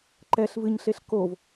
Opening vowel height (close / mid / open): mid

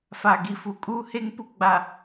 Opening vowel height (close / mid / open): open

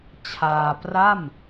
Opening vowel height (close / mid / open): open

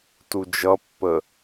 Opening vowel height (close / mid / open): close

